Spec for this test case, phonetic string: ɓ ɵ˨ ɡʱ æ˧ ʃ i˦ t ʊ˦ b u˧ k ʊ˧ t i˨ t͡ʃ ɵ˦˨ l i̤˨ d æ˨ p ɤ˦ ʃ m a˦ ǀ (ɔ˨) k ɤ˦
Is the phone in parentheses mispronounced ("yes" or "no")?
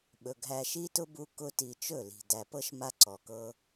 no